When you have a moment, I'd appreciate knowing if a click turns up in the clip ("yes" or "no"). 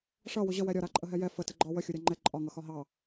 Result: yes